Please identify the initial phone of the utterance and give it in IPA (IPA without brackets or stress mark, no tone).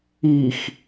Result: i